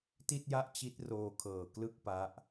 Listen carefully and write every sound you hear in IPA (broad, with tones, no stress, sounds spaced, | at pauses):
t i˥˩ t̚ j a˥˩ ʔ t͡ɕ i˦˥ t̚ r oː˧ kʰ ɤː˨˩ k l ɯ˥˩ k̚ p a˦˥ ʔ